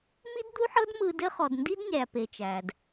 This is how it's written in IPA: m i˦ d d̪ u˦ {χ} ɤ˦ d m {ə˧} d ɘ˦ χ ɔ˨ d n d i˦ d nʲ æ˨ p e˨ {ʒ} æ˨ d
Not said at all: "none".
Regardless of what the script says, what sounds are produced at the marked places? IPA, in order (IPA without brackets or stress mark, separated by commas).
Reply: ħ, ɯ˧, t͡ʃ